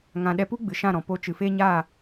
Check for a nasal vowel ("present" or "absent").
present